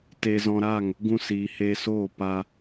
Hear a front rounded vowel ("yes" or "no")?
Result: no